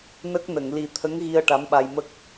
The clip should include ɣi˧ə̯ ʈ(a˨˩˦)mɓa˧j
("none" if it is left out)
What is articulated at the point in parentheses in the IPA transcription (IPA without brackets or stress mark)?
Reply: a˧˥